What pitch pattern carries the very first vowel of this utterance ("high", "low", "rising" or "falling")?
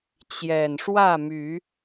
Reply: low